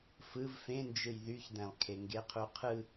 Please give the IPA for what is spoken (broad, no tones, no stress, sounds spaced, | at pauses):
f ɯ v f ẽ n d͡ʒ ɯ j ð y ç d̪ æ̃ lˠ kʰ e ŋ ɡ e qʰ u qʰ ɯ